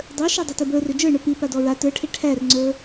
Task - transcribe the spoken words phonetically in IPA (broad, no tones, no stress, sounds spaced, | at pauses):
dˤ ə˞ ʃ a dˤ e t e b ə˞ r ø d͡ʒ ə˞ ɳ ə˞ p i p a d ɔ ɹ a t ə˞ ʈʰ e ʈʰ æ r ŋ͡ǀ ə˞